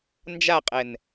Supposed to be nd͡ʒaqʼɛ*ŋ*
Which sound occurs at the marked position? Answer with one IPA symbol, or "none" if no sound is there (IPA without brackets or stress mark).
n